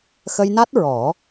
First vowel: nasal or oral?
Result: oral